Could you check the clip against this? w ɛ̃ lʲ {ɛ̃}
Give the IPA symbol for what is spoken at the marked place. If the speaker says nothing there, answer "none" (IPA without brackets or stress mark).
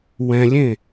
ẽ